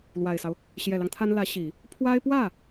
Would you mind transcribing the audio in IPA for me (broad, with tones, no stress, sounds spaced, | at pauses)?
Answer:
l w a˨˩ ɪ̯ s ɑ˦ ʊ̯ | ɕ j ɛ˨˩ l ɑ˦ ŋ t̪ʰ a˥ n l ä˧˥ ɕ i˨˩˦ | pʰ w a˥ ɪ̯ p w ä˥˩